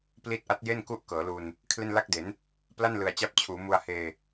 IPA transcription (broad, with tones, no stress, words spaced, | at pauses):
pli˦˥t̚ʔa˦˥t̚je˥˩n ku˦˥ʔ kɤː˩˦lu˧n | kʰle˥˩nla˥˩k̚de˩˦n | pla˥˩nlɯ˨˩a̯t͡ɕa˦˥p̚t͡ɕʰuː˩˦ mu˧a̯heː˧